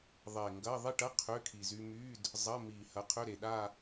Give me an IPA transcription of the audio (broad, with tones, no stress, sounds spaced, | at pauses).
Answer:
ðˤ e˨˩ ŋ ɡ ɐ˧˥˧ ðˤ i˥˧ ʈ ɐ˧˥˧ qʰ ʏ˧˥˧ kʰ i˨˩ z y˧ m y˧˥˧ d | zˤ ɐ˧˥˧ m i˨˩ h ɐ˨˥ qʰ ø˧˥˧ ɾ e˨˩ ɗ a˥˧